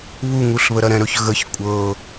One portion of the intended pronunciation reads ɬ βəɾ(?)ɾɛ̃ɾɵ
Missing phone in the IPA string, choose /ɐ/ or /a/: ɐ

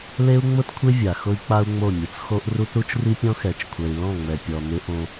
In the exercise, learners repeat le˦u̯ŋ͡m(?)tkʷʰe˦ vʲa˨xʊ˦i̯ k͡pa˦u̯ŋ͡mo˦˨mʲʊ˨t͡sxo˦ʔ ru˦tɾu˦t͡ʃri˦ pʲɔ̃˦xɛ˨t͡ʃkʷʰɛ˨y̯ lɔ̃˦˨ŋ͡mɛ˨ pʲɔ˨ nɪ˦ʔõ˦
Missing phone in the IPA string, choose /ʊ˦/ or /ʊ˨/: ʊ˦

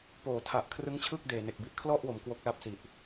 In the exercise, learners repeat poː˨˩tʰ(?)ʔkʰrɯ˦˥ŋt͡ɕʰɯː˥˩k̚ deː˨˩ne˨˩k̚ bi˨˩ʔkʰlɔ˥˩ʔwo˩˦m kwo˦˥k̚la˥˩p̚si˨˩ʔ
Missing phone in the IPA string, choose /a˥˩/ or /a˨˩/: a˨˩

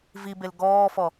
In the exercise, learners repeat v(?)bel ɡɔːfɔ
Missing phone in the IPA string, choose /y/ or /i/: i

